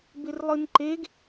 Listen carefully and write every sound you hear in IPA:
bɪrlˠɨnǃeɡ

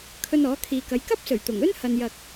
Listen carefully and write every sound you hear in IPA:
kʰɵ˧nɔː˨˥kʰiː˨kɐ˨˧j kɐ˥p̚sɵ˨˩ɥt̪ʊ˨˩ŋ ɵ˥n hɐ˨njɐ˨k̚

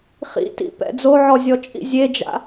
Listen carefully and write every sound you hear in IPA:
χḭtḭpɛ̰ d͡zoʕɔzʲɔt͡ʃʼḭ zʲed͡ʒa̰

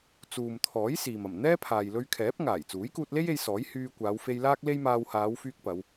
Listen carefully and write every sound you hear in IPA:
t͡suː˨mt̪ʰɔː˨˥j siː˨mɐ˨˩m n̪ɛː˥pʰaː˨jlɵ˧ɥkʰɛː˨˥p̚ ŋaː˨˩jt͡suː˨˥jkuː˧t̚le˥j e˧jsɔː˨˥j hyː˧kʷaː˨˧wfe˧j laː˥k̚le˥jmaː˧w haː˨˧wfyː˧k̚ pɐ˨˧w

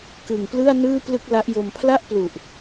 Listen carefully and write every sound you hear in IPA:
kɯ˨˩ŋ plɯ˥˩a̯nɯː˥˩ plɯ˥˩k̚la˦˥ʔjo˧m pʰla˥˩ʔplu˨˩ʔ

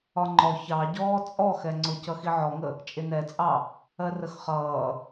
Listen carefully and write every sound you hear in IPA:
ɒŋ͡ǃɔ çɑɟɔː t͡sʼɔxɛ ŋ͡ǀʊc ʌxiʕɔŋə | t͡ʃʼɪnɛt͡sʼɑ | ɜrəxχʌː

